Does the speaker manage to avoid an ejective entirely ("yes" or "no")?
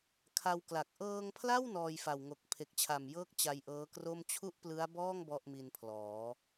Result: yes